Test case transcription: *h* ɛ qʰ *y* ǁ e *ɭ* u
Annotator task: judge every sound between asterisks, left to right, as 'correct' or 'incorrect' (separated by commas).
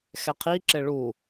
incorrect, incorrect, correct